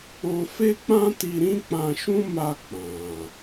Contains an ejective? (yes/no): no